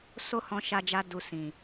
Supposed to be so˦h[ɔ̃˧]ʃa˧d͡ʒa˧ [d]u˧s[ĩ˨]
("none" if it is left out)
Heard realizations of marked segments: ɔ̃˧, d, ĩ˨

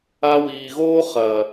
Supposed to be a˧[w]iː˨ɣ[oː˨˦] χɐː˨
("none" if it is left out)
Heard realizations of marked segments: w, oː˦

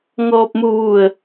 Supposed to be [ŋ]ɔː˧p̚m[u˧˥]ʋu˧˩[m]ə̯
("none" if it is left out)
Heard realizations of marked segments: ŋ, u˧, none

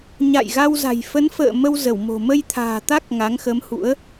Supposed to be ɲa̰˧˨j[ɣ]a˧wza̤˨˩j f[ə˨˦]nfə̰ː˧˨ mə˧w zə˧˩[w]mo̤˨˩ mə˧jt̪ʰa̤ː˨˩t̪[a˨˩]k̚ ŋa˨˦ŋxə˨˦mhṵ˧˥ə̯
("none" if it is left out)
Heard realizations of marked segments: ɣ, ə˨˦, w, a˦˥

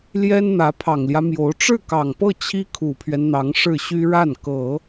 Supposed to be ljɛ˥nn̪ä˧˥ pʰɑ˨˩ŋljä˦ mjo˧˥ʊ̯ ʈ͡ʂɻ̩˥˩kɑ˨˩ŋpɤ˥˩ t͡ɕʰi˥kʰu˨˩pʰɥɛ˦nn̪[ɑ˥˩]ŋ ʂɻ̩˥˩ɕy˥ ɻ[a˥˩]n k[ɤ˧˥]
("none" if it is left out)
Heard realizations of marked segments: ɑ˧˥, a˥˩, ɤ˨˩˦

